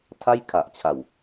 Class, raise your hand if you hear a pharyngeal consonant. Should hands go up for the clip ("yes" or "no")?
no